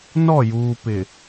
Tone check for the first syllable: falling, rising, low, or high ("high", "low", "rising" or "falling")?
falling